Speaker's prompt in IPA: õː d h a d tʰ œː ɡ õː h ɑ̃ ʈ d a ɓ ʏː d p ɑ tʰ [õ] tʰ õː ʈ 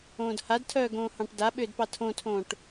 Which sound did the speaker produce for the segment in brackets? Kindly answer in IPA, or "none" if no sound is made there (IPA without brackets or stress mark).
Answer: õ